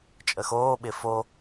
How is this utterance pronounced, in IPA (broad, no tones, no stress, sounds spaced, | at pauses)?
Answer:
t͡ʃʼ ə x oː ɓ ɪ f o